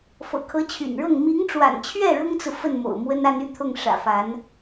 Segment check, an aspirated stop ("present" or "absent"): present